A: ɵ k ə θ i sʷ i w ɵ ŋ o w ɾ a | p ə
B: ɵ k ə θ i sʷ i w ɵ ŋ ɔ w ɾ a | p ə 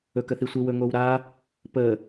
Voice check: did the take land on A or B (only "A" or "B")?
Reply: A